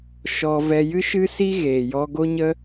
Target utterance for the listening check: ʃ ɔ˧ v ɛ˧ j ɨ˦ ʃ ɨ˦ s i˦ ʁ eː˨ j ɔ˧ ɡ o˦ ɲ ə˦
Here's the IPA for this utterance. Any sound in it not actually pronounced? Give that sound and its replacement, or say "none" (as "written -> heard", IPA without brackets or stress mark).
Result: ʁ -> ɣ